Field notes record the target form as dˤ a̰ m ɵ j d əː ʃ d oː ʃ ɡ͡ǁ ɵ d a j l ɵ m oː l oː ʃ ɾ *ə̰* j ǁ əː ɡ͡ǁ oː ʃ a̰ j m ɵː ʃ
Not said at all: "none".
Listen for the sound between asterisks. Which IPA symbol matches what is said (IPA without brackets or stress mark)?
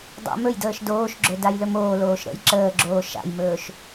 ə̰